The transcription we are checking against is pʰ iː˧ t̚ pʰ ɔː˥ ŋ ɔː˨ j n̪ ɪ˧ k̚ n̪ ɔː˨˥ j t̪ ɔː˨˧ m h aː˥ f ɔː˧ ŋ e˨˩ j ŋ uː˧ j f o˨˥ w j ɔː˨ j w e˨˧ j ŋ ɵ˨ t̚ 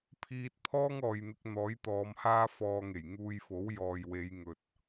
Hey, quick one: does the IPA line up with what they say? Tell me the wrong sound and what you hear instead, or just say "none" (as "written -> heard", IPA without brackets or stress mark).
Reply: none